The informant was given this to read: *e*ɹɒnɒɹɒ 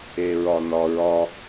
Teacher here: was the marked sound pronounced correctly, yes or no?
yes